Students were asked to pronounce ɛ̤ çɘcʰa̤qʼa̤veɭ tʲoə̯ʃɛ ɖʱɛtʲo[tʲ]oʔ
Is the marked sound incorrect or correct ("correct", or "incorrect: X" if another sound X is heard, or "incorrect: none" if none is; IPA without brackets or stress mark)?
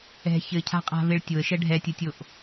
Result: correct